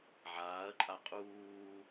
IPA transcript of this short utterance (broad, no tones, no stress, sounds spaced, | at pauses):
ʕ aː ɐ̯ ǃʼ a qʼ uː